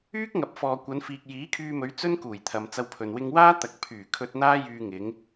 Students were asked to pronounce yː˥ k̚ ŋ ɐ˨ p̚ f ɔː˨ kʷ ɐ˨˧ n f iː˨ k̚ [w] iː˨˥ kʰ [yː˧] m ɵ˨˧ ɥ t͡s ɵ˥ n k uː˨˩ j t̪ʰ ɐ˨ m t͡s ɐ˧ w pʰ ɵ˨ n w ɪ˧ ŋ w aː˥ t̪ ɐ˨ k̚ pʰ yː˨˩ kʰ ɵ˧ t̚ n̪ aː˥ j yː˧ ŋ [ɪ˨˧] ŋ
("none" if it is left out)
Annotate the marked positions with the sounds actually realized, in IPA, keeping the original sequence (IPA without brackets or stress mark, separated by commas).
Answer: j, yː˧, ɪ˨˧